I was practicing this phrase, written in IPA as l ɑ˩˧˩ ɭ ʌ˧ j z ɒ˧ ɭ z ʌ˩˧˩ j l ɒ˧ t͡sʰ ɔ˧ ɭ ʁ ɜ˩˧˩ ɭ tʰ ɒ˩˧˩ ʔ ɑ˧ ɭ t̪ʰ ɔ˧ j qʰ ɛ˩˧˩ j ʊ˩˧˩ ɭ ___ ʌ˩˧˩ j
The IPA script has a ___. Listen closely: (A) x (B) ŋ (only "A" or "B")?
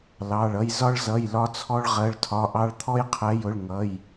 B